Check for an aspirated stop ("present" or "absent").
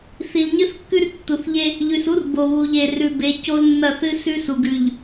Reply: absent